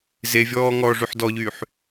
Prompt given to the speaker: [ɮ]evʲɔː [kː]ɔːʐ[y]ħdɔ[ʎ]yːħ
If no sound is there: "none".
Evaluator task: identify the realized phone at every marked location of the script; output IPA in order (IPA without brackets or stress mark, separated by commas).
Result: z, ŋ, y, ʎ